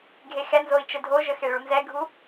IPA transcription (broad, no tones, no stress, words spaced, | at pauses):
ɡʱexɛnzoi̯ t͡ʃədʱoʒə xeɭunzɛɡʱu